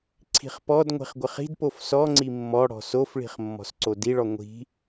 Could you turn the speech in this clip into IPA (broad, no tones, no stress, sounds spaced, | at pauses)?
ǀʰ i̤ χ p ɔ d ŋʷ i̤ χ ɡʷ ɪ χ i̤ d p o f s ɔ ŋ͡ǀ i mː ɔ ɽ ɔ̤ s o f ɭ i̤ χ mː ɔ̤ s ǀ o d i ɭ ɔ ŋʷ i̤